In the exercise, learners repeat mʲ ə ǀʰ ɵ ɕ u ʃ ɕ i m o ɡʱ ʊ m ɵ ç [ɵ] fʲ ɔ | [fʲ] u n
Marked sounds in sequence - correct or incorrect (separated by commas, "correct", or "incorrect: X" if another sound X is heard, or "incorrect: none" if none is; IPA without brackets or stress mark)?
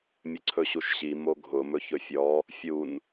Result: correct, correct